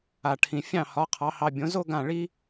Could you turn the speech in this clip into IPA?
a˩ʈʰĩ˩ fʲɑ̃˥˩hɒ˩˥ qʰɑ˩˥hɑ˧ bʲõ˩˥ zo˥ɡã˥˩ɭi˥

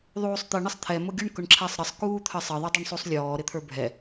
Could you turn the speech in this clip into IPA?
ðˤuːsˤt̪ə ɳəsˤt̪ʰɛ mʊɡʲʊɳ kʊɳǁʰæsˤɾəsˤ kuːt̪ʰəsˤə ðˤə˞dˤuɳsˤusˤlʲɔː ɾɪt̪ʰə˞bʱɛ

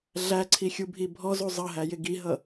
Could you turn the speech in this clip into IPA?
ɮæǀʰixʲubʱi bʱɔzu zˤʌɦæjɪ ɡiɦʌ

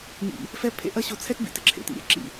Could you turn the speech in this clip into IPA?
ɲḭ˦ | fɛ˦ pʰḛ˦ʔɐ˦ ɕo˧t͡sʰɛ˦tbḭ˧tɪ˧ ǁʰḛ˨tḭ˦ ɾʲɛ̰˧ǁḭ˦˨

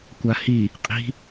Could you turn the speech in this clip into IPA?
kʷahi | qʼi̤

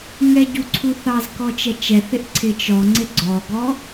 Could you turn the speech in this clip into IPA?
ŋɛɟu ǀʰuθɑzkɔ t͡ʃɛt͡ʃɛθɪʔ ǀʰɪt͡ʃɔŋ͡ǀɪ ɡ͡ǀɔɡɔ

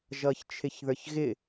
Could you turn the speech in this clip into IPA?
ʒʌːçt͡ʃʰɪçðə˞çɣɪ

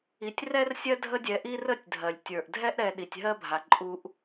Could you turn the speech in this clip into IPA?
i˨tʲrɛ˦r sʲɜ˥dʱə˦dʲɛ˨ ʔi˦rə˦tʲdʱɜ˩lʲ tʲə˞˩ʔdʱɛ˦ʔɾɛ˨ ɗi˩tʲɦɜ˦bʱa˩ ǃʼu˨ʔ

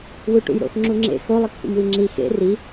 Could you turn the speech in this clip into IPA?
wuʈṵjɾo̰x ŋ͡ǁuŋ͡ǁḛ xo lˠikfṵmwiŋ͡ǁi xḛ ri

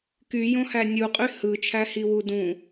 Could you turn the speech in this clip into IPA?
kyjõhæ nʲuqʼy hɯt͡ʃʰæhiwu dũ

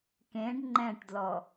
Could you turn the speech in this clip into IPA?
kẽɖ ŋ͡ǃɛ̃ʈdlɔ

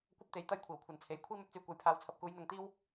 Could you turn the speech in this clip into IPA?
kʷɐ˥p̚t̪e˨˥j t̪ɐ˥j kʷʰiː˨˩wkʷʰɐ˨nt͡sʰe˨˥j kʷʰiː˥mɵ˨˥t̚t͡syː˨kʷɐ˨˧j pʰaː˨˧wt͡sʰɐ˨p̚ kuː˨˧jn̪ɐ˨˧ŋt̪iː˥w

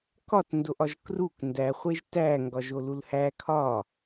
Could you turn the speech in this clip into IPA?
kɒt ndoʔɒʒkruk ndæχʷeʒ tæ ŋɡɒʒolulhæ kʰɒ

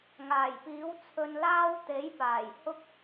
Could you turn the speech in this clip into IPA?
ŋaː˨˩jpiː˨˥w t͡sʰɵ˧nlaː˥w t̪e˨˥jpaː˨˩j hʊ˥k̚

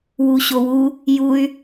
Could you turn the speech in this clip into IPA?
wuɕowu | juy̯

